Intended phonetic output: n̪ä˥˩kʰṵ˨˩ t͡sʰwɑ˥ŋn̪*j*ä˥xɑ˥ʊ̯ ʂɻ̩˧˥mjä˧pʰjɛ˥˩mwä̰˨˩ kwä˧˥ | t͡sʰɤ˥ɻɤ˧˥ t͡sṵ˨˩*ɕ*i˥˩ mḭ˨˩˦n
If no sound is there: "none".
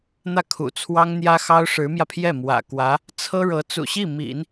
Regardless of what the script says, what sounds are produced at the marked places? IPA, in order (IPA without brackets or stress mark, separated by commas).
j, ɕ